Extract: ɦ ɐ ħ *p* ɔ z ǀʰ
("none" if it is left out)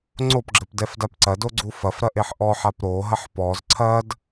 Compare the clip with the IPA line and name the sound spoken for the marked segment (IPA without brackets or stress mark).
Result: p